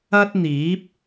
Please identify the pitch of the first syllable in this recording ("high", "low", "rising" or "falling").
high